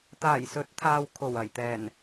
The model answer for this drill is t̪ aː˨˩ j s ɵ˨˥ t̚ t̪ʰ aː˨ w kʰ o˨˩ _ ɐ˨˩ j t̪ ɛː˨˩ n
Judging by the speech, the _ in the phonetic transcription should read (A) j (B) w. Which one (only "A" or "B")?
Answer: B